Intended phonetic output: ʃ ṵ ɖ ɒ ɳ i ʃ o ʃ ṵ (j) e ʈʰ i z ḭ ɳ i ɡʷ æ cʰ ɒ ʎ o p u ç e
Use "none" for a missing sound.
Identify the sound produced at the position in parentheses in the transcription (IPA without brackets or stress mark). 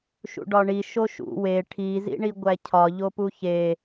w